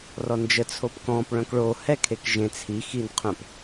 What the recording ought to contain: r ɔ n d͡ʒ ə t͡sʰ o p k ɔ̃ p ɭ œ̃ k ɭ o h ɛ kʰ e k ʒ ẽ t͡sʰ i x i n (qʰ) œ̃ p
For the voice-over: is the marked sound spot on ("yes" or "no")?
yes